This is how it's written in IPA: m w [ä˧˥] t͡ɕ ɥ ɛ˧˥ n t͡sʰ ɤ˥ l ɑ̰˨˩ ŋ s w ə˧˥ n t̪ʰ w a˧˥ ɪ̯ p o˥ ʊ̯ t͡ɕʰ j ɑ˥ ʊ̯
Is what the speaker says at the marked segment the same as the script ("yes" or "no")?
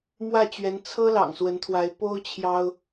no